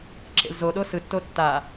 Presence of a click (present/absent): present